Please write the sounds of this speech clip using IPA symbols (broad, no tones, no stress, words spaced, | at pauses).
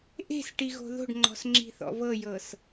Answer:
ʔe̤s ʈiɣo̤ðo̤ɖŋ͡ǃɔ̤s ŋ͡ǁi̤θɔ̰vɤjɤs